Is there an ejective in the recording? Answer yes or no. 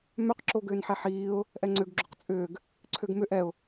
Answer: yes